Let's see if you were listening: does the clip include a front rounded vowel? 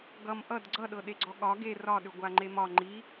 yes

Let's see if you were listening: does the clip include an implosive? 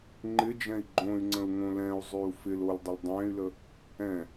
no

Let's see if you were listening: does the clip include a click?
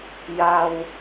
no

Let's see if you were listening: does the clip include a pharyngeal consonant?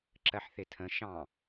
yes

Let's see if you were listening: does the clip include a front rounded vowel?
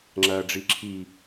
no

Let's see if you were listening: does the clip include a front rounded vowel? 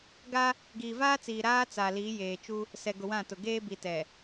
no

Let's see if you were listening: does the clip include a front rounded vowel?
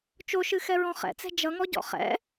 no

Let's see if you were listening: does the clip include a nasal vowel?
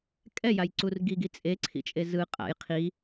no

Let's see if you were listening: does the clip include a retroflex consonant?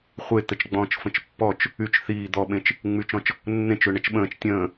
yes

